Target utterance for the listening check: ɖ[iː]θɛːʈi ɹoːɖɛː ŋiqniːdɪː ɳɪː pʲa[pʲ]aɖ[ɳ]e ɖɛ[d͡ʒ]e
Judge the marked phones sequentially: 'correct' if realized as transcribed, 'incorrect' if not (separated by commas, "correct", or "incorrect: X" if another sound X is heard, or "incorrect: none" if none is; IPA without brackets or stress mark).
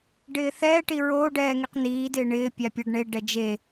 incorrect: ɪː, correct, correct, correct